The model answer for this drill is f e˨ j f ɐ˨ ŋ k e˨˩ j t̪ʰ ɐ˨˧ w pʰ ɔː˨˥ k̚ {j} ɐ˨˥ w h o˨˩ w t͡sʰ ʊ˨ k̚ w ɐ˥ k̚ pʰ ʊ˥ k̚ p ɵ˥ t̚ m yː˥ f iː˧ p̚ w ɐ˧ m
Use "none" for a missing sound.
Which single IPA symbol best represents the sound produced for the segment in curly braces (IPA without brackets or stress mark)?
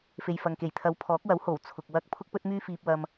w